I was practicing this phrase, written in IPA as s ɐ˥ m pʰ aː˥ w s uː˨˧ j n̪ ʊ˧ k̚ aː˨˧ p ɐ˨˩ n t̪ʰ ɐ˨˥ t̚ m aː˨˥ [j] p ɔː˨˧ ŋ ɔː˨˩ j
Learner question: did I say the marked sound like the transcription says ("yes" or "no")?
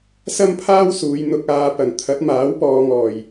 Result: no